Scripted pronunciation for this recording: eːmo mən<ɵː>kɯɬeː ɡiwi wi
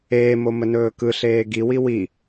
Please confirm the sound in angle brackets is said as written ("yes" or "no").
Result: yes